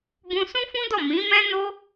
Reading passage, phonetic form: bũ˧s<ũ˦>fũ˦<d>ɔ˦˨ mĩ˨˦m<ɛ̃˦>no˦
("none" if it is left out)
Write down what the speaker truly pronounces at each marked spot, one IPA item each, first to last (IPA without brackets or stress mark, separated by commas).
ũ˦, d, ɛ̃˦